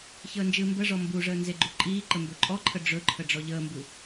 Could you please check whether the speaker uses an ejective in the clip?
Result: yes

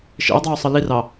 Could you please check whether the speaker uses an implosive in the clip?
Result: no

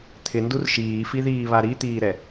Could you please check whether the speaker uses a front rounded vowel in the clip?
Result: no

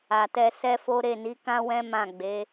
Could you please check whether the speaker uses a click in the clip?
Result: no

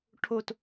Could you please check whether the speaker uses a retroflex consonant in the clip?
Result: yes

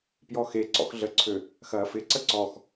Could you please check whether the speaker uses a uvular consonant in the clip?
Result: no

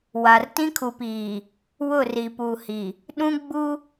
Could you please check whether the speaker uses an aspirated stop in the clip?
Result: yes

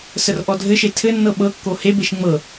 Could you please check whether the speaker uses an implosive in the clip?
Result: yes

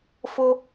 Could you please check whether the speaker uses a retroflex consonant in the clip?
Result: no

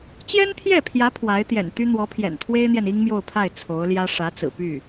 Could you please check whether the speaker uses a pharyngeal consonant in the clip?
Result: no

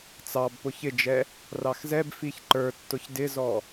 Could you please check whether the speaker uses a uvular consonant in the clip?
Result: no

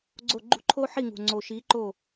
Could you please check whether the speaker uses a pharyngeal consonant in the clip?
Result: yes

